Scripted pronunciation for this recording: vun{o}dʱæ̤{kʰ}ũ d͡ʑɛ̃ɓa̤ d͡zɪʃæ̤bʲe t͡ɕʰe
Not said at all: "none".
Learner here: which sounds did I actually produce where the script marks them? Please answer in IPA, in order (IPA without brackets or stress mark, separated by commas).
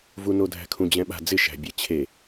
o, kʰ